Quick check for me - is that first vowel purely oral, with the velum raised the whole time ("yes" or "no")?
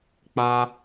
yes